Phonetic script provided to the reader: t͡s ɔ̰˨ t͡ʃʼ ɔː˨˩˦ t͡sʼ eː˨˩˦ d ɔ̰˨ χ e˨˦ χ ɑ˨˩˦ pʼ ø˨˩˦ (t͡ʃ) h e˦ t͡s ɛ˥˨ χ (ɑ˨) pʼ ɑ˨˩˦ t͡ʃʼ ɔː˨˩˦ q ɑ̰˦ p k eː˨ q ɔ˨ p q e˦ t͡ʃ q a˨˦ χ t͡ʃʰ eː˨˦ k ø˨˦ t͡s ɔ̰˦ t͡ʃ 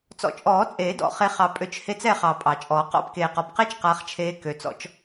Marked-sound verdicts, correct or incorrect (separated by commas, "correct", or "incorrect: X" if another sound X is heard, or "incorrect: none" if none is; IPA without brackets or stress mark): correct, correct